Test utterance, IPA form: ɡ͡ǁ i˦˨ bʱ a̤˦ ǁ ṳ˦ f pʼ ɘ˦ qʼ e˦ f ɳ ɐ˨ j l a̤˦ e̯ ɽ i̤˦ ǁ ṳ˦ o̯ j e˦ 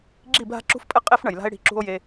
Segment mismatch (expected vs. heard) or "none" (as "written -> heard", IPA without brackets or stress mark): none